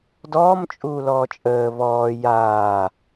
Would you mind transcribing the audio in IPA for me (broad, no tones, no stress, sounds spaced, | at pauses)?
d ɔː m t͡ʃʼ uː l ɔː t͡ʃʼ əː β ɔː j a